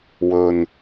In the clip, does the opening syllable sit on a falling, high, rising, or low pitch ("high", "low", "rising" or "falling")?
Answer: low